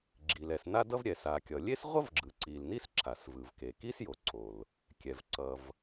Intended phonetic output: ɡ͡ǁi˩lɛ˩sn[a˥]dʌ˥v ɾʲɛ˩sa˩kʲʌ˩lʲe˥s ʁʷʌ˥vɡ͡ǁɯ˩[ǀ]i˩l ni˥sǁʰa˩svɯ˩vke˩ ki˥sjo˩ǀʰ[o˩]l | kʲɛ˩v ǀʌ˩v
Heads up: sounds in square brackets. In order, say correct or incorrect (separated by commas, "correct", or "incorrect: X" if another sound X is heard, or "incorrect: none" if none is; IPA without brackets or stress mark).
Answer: correct, correct, correct